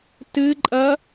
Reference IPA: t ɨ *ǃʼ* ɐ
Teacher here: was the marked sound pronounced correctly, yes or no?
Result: yes